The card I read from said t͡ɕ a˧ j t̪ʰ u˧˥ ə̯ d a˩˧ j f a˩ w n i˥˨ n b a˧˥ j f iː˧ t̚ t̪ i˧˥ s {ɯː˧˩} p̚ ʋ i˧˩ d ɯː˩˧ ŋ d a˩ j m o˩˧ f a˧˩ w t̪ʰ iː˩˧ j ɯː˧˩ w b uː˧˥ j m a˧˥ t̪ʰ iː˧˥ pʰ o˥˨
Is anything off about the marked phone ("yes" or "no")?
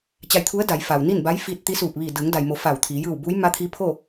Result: yes